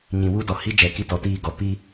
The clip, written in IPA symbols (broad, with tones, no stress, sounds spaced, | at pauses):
ɲ ĩ˨ w u˦ d ɔ˨ h i˦ d͡ʒ ɛ˨ k i˦ t ɔ˨ t iː˦˨ ɡ ɔ˨ p i˦